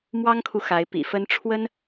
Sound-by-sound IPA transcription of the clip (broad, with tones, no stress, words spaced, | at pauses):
mwɑ˥ŋkʰu˨ xa˧˥ɪ̯ pḭ˨˩fə˥n ʈ͡ʂʰwə˥n